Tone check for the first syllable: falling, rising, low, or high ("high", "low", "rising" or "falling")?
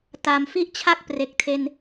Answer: low